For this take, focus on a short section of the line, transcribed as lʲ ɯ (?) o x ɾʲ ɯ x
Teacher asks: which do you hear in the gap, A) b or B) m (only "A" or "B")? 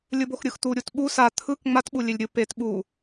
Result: A